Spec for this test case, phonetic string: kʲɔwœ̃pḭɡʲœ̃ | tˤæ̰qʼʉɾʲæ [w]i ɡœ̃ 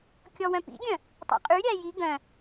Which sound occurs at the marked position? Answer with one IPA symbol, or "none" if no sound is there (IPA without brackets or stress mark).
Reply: j